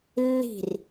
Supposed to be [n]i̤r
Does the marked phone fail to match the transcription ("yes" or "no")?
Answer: yes